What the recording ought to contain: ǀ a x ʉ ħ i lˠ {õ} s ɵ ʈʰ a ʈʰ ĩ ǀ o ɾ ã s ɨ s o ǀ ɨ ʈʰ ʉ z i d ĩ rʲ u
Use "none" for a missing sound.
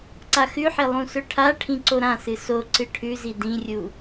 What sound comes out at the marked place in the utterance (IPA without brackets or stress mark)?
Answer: ũ